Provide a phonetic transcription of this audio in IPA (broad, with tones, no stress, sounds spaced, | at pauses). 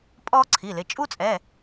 pʼ ɔː˥ ǀʰ i˩˧˩ l ɪ˩˧˩ t͡ʃʼ u˥ t͡sʼ ɛ˩˧˩